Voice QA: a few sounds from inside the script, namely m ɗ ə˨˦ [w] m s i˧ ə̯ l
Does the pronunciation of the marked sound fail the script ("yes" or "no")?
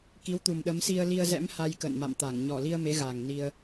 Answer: yes